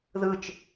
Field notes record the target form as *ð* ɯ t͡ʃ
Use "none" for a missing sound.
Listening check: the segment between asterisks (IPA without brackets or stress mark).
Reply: ð